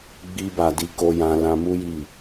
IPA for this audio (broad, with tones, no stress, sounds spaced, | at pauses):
ɡ͡b i˦ b a˧ d i˧ k o˧ j ã˧ l ã˧ m u˦ j i˦˨